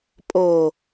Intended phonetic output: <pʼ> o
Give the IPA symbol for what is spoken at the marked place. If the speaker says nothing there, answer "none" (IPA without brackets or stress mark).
pʼ